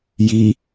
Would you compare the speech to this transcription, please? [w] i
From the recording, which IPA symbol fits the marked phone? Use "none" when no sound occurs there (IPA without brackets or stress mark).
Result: j